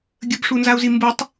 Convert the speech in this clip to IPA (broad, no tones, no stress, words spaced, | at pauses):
ɡʲəbʂunzau̯zi mbutˤ